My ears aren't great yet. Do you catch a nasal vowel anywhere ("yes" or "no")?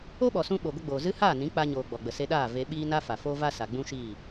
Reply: yes